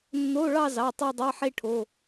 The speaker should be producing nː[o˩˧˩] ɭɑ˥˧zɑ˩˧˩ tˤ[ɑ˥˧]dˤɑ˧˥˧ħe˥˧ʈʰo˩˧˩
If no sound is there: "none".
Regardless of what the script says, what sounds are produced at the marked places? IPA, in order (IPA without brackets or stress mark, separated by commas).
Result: o˧˥˧, ɑ˥˧